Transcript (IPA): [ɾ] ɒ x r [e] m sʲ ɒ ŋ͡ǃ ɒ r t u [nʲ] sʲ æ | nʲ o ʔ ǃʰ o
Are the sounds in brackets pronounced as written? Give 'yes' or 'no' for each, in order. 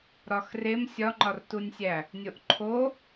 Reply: yes, yes, yes

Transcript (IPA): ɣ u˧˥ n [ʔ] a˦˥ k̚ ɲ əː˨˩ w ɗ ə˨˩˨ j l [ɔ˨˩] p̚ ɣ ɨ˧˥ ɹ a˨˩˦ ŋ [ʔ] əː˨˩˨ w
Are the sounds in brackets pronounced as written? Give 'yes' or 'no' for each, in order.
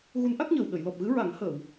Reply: yes, yes, no

